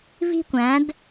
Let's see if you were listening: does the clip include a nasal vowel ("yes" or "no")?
yes